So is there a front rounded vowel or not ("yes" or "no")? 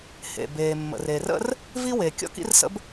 no